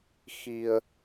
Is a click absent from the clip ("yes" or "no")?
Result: yes